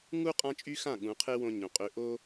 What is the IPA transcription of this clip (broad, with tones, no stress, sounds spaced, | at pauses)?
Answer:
ŋ u˦ qʼ ã˦ t͡ʃʼ y˦ x ã˦˨ ɠ ũ˨˦ qʰ e˦ w õ˧ ɲ õ˨ qʼ ø˧ ʔ o˦